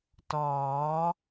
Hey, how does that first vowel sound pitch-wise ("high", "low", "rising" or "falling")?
rising